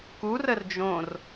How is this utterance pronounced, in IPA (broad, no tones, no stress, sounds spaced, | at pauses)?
k u r ə r d͡ʒ õ r